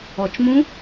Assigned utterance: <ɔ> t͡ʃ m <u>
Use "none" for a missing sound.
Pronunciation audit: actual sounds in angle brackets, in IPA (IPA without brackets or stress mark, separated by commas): ɔ, ũ